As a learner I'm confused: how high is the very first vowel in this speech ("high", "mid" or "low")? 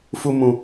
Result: high